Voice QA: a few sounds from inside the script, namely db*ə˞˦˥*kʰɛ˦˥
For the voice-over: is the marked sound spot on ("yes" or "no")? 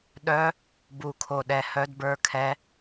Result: yes